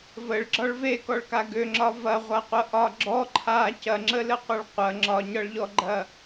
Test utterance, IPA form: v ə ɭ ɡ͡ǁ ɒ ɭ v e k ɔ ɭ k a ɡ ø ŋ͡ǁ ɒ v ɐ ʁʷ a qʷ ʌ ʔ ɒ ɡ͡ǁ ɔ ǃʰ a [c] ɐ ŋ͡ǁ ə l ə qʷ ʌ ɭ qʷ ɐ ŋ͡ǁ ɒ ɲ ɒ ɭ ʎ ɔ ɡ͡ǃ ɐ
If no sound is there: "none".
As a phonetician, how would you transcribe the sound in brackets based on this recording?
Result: c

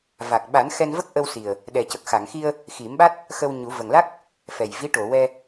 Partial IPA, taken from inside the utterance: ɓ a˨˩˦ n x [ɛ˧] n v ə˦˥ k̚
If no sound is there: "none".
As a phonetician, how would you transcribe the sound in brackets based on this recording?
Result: ɛ˧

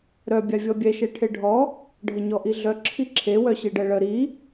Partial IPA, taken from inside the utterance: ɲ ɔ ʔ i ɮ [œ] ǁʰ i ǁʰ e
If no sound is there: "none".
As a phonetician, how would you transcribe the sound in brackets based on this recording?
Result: œ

